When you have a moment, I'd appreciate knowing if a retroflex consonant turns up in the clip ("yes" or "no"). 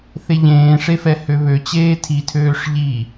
yes